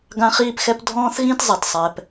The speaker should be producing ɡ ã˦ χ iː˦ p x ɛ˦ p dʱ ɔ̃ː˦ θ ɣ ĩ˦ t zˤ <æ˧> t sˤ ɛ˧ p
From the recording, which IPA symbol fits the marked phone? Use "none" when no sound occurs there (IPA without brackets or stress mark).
ɛ˧